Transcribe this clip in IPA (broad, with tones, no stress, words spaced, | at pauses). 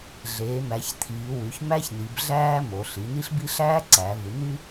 ɮeː˩˧mæ˩˧ç t̪ʰiː˩˧wy˩˧ç mæ˥çni˩˧bɮæː˥ mo˩˧ɬi˩˧ni˥ɬbi˥ ɬæː˥ǀæː˩˧vɯ˩˧ n̪y˥